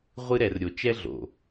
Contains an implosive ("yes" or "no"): no